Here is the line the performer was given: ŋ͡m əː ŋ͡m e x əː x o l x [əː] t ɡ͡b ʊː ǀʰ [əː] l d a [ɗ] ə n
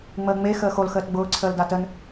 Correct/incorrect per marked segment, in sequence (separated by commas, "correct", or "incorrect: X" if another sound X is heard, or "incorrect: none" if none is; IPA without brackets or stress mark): correct, correct, incorrect: t